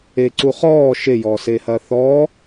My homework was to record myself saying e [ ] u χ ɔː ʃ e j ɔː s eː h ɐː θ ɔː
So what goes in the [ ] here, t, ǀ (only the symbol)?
ǀ